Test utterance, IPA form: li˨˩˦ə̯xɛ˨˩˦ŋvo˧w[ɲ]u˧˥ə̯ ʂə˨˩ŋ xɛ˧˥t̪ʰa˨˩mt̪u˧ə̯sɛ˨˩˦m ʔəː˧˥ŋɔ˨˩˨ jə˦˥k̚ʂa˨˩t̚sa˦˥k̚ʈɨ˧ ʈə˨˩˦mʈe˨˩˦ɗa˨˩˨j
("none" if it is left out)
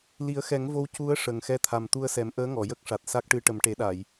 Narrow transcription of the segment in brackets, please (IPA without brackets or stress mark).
c